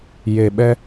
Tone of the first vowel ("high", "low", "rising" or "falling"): low